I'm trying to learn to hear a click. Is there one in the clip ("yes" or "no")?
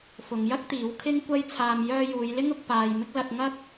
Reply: no